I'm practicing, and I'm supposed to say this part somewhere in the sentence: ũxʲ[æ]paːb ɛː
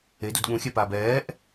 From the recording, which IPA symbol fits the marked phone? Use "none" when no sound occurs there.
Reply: ɛ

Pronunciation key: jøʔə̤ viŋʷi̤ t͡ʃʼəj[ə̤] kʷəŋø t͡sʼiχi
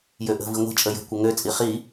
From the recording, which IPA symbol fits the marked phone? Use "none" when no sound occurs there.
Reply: ə̤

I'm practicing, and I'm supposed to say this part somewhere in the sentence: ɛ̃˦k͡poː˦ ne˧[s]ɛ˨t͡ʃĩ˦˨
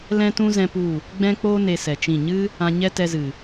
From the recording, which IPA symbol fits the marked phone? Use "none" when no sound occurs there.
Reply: s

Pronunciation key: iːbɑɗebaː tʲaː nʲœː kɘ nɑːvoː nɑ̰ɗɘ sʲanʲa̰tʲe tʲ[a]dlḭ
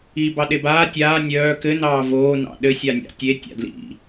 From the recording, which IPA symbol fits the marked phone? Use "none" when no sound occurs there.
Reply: a̰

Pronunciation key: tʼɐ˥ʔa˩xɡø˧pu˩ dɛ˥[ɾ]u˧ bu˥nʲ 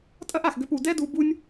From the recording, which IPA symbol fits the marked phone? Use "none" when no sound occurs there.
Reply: d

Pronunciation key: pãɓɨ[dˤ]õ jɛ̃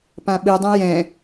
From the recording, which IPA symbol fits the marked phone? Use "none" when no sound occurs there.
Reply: dˤ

